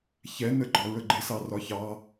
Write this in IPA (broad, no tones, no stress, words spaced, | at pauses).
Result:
çɛnə ɡ͡ǃɒɹəɡ͡ǃɪ sɑrɒçɑ